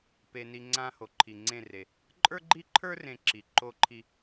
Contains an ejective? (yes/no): yes